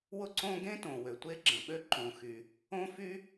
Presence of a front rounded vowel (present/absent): present